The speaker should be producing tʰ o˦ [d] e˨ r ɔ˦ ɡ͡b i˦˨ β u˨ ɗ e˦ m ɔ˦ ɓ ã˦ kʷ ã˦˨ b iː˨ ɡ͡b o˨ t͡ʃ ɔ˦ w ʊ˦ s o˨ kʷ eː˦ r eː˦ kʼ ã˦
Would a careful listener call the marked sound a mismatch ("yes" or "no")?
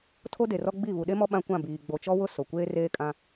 no